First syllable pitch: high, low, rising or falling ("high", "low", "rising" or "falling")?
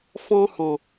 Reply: high